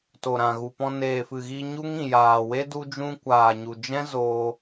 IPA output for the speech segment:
to˨ɾã˨ ɣu˨pɔ̃˧ neː˨fɨ˨ɣi˧ ɲu˦ŋĩ˨jaː˨we˦ du˦d͡ʒũ˦ kʷaː˨ɲu˨d͡ʒɛ̃˦ zoː˧

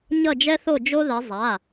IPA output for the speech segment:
ɲʌ˥˨d͡ʒɛ˥θo˥˨ d͡ʒo˥ðɛ˨˥ zˤa˩˧˩

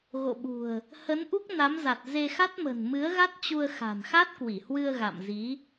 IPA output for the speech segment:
ɣo̰˧˨ɓṳ˨˩ə̯ | hə˨˦nʔu˦˥k̚na˨˦mza˨˩t̚ ze˧xa˦˥t̚mə̤˨˩n mɨ˨˦ə̯ɣa˦˥t̚ t͡ɕu˧ə̯xa̤˨˩n xa˦˥t̚kwi˧˩hwɨ˧ə̯ɣa̰˧˨m zi˨˦

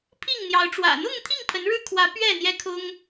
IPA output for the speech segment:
pʰi˥˨ŋn̪jɑ˨˦ʊ̯ʈ͡ʂwä̰˨˩ n̪ʊ˥˨ŋt̪ʰi˥˨ŋ pʰə˨˦nɻɻ̩˦kʰwä˨˦ pɥɛ˥˨n̪jɛ˦kʰʊ˦ŋ

